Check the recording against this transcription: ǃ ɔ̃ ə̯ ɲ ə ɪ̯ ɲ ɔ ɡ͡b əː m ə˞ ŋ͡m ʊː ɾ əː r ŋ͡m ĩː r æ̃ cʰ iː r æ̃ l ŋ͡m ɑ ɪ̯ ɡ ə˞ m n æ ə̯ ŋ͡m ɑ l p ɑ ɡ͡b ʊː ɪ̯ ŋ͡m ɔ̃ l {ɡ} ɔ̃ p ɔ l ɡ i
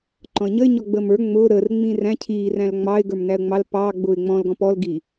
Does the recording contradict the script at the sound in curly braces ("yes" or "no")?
no